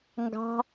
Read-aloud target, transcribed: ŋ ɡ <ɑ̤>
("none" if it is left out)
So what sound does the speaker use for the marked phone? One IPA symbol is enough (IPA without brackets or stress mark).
ɑ̤